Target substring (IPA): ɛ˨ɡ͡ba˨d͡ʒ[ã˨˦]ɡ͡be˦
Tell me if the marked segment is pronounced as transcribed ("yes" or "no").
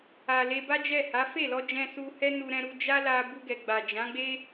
yes